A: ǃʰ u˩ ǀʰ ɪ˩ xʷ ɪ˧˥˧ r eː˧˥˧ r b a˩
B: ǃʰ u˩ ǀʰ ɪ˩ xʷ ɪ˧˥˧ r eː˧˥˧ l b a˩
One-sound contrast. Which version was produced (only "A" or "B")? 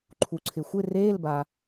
B